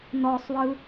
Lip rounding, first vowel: rounded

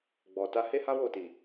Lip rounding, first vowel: rounded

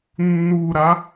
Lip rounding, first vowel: rounded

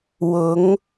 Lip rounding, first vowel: rounded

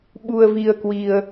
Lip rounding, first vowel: rounded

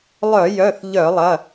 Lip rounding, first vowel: rounded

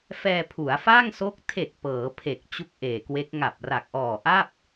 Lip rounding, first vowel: unrounded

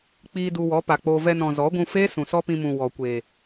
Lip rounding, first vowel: unrounded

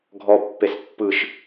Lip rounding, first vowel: rounded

